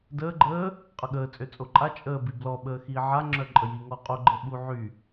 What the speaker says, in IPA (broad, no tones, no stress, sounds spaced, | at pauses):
d əː ɡ͡ǃ əː | qʼ ə ɠ əː t͡sʼ ø t͡sʼ o ǃʼ a t͡ʃʼ əː b i b l ɔ ɓ əː x iː ʕ a ŋ͡ǁ œ ǃʼ ə j i ŋ ɔ qʼ o ɡ͡ǃ ə ɓ u ʕ y